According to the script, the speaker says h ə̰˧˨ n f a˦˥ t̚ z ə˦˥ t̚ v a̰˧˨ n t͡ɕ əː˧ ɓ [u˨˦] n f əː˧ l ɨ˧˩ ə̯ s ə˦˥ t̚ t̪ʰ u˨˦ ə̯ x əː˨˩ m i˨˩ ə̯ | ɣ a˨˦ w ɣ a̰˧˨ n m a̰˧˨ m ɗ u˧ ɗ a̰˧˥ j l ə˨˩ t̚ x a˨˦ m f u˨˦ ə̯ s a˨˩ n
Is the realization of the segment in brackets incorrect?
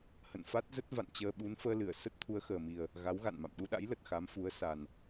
no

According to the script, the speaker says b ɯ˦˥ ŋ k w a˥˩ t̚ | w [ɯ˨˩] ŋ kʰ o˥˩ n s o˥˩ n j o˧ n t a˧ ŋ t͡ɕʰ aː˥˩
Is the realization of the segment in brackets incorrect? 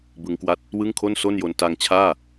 yes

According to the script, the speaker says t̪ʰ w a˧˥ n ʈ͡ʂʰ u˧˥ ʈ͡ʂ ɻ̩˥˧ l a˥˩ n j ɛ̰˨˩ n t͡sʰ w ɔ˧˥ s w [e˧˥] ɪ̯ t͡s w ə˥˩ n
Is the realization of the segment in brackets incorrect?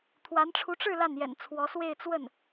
yes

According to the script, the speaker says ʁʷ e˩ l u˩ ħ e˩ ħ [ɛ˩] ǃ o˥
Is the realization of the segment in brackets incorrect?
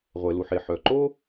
yes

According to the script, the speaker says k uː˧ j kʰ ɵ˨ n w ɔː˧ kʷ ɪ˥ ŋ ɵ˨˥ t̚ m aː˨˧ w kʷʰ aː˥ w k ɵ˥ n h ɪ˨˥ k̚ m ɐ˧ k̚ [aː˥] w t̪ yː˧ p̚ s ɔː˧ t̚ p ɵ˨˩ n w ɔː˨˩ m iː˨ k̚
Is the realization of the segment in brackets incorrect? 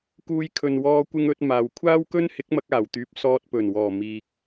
yes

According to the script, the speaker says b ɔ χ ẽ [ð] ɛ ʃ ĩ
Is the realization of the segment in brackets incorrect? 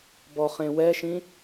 yes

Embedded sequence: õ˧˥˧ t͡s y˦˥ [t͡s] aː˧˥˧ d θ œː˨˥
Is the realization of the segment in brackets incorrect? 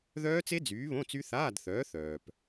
yes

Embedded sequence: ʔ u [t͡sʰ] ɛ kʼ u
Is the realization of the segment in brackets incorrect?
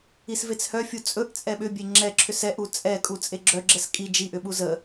yes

